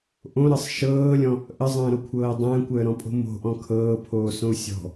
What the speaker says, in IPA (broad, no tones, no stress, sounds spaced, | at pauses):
ʔ õ ɾ ɤ sˤ ʃ ɤː lʲ ɔ̃ | ʔ ə zˤ ə̃ː ɾ o kʷʰ ɤː dˤ ə̃ː kʷ əː ɾ ɔ̃ pʼ o̤ m o̤ ʔ ɔ̃ kʰ ɤː pʰ oː s õ u̯ sʲ ɔ̤